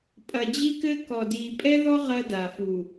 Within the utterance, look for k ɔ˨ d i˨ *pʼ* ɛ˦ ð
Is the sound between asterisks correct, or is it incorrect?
correct